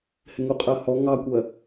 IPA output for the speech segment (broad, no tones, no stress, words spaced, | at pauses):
hɪŋuqʼɜhɔ ŋɑkʷɜ